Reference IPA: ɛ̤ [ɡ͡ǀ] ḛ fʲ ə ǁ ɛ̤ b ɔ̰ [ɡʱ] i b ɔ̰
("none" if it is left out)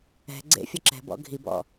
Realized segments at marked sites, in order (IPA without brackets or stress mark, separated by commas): ɡ͡ǀ, ɡʱ